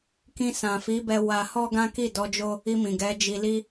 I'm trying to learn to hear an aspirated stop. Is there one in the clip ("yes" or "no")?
no